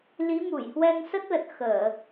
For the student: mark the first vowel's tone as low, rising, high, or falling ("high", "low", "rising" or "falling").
rising